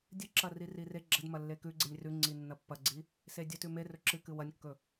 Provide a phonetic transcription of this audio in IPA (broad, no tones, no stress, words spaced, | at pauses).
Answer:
dʲɨǁɐri rire ɡ͡ǁɐdmɐlːe kʉɡ͡ǀinʲ rʉŋ͡ǀi nːɐpːɐɡ͡ǀi | sedʲɵtʉ merɵ ǁɨ kɨwɐnʲkːɵ